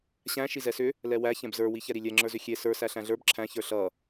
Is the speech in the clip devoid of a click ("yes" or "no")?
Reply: no